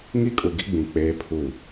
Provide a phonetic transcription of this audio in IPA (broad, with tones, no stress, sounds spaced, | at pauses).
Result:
ŋ i˦ kʼ u˨ ɡ i˦ ɡ͡b ĩ˨ k͡p eː˦ pʰ u˦˨